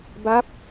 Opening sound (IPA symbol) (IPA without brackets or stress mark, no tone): b